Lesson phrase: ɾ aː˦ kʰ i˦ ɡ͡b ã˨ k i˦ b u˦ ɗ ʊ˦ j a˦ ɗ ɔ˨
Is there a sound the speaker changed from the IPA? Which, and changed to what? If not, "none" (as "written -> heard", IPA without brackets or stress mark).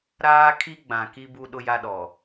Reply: none